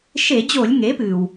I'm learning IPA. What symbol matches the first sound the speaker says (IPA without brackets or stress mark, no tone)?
ʃ